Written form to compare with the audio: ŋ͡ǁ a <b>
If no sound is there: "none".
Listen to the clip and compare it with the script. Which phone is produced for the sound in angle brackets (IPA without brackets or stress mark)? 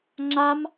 m